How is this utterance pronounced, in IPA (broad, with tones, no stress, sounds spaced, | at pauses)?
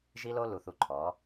ʒ i˦ l o˦ l u˨ θ u˨ ǃʰ ɔ˨˦